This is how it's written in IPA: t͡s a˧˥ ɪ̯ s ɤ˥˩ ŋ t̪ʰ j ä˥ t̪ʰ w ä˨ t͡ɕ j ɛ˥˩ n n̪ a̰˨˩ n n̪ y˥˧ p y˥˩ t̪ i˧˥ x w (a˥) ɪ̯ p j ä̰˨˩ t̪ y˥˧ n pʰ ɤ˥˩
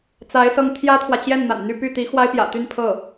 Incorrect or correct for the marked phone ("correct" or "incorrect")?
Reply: correct